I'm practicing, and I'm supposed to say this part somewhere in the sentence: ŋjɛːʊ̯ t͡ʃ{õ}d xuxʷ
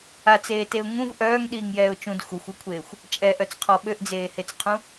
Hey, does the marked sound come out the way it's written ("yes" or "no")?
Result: no